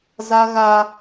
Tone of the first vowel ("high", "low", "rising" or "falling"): high